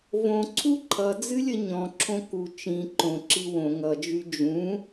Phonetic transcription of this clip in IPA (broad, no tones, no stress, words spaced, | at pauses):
võǀʰu ǃʰʌd͡zɨlʲə ɲɔ̃ǁʰõ ku t͡ʃĩ ǃõǁi wõ ŋʌd͡ʒy d͡ʒũ